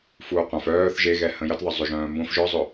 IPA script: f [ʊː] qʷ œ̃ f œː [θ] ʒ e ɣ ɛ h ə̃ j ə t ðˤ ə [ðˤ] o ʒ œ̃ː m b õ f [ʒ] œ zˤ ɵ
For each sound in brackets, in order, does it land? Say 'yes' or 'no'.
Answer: no, yes, no, yes

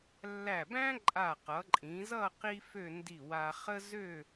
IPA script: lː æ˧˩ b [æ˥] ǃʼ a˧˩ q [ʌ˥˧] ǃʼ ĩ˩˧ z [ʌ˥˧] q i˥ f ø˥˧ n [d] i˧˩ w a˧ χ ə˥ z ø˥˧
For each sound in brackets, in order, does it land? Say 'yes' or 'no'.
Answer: no, no, yes, yes

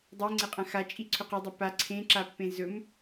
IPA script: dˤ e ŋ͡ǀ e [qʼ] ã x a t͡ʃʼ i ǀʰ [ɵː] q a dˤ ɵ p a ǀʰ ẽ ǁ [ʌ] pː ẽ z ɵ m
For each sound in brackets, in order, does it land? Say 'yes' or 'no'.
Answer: yes, no, no

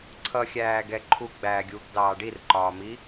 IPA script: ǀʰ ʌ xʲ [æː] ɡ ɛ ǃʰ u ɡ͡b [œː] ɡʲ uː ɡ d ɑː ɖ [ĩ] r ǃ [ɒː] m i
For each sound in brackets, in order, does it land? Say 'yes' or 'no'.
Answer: yes, no, no, yes

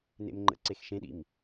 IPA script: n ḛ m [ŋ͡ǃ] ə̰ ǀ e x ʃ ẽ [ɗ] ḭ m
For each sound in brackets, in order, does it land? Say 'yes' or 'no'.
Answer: yes, yes

